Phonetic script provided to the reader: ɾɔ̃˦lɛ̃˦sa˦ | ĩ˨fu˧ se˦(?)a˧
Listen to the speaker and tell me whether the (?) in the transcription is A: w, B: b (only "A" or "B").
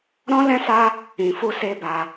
B